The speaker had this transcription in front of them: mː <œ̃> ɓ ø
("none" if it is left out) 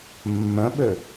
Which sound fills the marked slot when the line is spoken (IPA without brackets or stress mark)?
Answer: œ̃